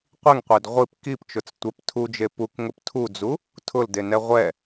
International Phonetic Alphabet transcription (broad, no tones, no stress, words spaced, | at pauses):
qʷiŋqʷed ʁʷip kipt͡ʃʊt͡s tʷɛp tʰud͡ʒe pukŋʊp tʰud͡zu | tʰʊldenɛ ʁʷɛ